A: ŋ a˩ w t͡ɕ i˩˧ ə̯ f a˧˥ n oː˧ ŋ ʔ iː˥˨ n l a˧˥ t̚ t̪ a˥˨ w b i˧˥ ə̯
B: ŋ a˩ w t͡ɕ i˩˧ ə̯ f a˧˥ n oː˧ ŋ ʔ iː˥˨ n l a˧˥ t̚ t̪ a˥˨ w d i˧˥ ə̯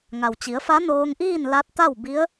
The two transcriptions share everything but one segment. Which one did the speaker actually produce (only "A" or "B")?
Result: A